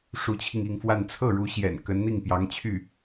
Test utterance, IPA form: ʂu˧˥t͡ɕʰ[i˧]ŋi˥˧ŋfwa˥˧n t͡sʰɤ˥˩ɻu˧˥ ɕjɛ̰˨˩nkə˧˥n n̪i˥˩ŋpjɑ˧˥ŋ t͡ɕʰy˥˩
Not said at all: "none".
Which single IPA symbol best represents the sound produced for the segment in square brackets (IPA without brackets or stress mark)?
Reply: i˧